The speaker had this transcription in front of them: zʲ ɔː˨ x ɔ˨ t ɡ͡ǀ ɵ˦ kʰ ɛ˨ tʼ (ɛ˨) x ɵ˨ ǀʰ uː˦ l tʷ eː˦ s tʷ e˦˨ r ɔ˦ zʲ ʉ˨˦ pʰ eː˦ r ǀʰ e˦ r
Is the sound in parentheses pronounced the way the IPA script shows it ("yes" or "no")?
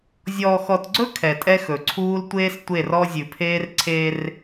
no